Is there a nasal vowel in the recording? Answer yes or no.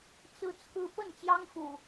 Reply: no